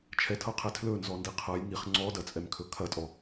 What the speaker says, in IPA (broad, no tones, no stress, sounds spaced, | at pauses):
t͡ʃʰ ɛ tʰ ɤ qʰ ɛ tʰ l ɵ n z ɔ n d i qʰ ɤ j ŋ i χ ŋ͡ǀ ɔ d ɐ t͡sʼ ɛ m kʰ ɵ kʰ ɐ tʼ ɔ